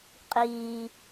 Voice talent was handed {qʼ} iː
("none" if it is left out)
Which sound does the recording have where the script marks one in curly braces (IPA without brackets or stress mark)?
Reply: qʼ